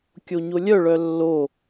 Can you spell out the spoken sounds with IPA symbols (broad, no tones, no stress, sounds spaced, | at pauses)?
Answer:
kʲ o ɲ o lʲ œ ɭ œ lː o